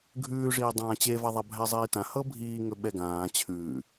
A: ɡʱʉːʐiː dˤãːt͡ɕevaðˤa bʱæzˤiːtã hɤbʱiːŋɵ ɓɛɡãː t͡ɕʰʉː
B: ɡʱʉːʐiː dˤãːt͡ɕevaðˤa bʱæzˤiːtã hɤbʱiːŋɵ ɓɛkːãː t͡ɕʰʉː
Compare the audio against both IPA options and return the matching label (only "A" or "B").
A